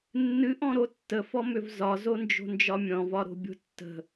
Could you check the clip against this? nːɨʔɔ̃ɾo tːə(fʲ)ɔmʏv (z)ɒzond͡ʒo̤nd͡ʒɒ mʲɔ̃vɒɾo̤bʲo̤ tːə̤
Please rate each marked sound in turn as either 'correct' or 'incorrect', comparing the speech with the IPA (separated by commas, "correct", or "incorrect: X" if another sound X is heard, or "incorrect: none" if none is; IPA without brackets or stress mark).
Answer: incorrect: f, correct